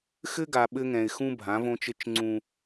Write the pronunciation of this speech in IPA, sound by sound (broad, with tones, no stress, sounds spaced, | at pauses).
x ɘ˦ ɡ a˨ ɓ ɘ˦ ŋ ɛ̃˨ ɪ̯ x ũ˦ bʱ ã˨˦ v õ˦ t͡ʃ ɘ˦ t͡ʃ ŋ͡ǀ ũ˦